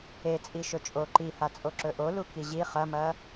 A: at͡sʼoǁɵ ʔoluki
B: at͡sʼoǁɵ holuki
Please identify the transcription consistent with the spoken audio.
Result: A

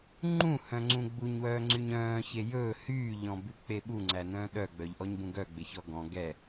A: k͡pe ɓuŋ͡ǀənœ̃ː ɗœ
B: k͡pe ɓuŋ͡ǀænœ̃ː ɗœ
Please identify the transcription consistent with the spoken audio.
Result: B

